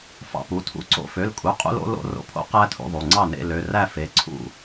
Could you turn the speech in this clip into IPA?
f ɑ̰˧ p u˩˧˩ tʰ ṵ˩˧˩ ǀ o̰˧ f ø˩˧˩ l kʼ u˩˧˩ qʼ ṵ˧ l o̰˧ l o̰˧ r o̰˧ pʰ o̰˧ q æ˧ tʰ ṵ˧ ðˤ u˩˧˩ ŋ͡ǀ ɑ˥˩ n ḛ˥˧ l ø˩˧˩ r æ˥˩ f e˩˧˩ ǀʰ ṵ˥˩

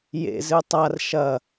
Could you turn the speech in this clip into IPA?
j ḛ z ɨ tˤ a r ʃ ɐ

